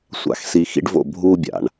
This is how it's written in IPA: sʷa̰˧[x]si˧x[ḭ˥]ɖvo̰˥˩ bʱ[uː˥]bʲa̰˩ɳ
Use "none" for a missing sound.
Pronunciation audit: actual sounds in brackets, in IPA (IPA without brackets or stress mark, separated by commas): x, ḭ˥, uː˥